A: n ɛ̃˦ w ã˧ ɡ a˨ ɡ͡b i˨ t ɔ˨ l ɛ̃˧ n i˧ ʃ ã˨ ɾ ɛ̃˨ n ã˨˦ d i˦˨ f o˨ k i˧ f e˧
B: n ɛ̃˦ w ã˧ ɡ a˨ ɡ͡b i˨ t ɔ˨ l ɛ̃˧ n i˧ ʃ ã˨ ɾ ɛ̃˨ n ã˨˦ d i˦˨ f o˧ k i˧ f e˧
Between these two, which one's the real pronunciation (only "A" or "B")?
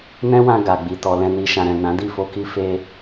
B